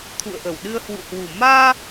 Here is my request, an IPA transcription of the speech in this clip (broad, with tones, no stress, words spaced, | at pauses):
t̪ʰṵ˧˨ə̯ʔə˧˩wɗɨ˧ə̯ hwṵ˧˨hwu˨˩ maː˧